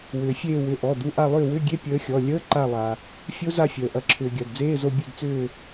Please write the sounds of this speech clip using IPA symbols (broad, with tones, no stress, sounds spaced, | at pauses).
w ʏː˩ fʲ eː˦˨ w ʏ˩˧˩ ʔ ɔ˩˧˩ d u˩˧˩ ʔ a˦˨ lˠ ʏː˦˨ w ʏ˧˥˧ ɡʲ e˧˥˧ pʲ əː˨˥ xʲ ɔ˩˧˩ lʲ əː˧˥˧ ǃ a˦˨ lˠ a˩ | fʲ o˦˥ z a˦˨ fʲ əː˩ ʔ ɐ˩ ǁʰ ʏː˩ ɡʲ a˩ d d͡z eː˧˥˧ z o˦˨ bʲ u˦˨ d t͡s ʏː˦˨